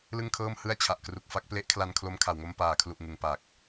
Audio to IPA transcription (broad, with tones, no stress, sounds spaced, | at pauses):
l ɯ˥˩ ŋ kʰ ɤː˥˩ m h ɯ˥˩ a̯ t͡ɕʰ a˨˩ ʔ k r u˨˩ k̚ f a˦˥ k̚ p l e˦˥ ʔ kʰ l a˧ n kʰ l o˧ m kʰ a˨˩ w ŋ o˧ m p aː˨˩ kʰ l u˨˩ ʔ ŋ ɯ˨˩ ŋ p a˨˩ k̚